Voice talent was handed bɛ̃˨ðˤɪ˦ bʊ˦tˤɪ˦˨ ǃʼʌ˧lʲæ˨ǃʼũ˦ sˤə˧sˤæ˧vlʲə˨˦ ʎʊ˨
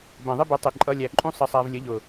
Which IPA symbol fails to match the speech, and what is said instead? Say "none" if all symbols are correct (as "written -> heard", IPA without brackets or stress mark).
none